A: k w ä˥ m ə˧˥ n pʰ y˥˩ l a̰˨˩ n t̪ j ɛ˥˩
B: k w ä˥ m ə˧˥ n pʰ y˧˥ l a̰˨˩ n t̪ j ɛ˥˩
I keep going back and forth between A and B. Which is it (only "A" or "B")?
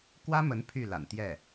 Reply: A